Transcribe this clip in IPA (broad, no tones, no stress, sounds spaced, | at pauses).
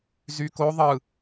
z y k o ðˤ ɯ